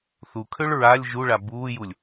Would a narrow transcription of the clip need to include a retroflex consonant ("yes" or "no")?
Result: yes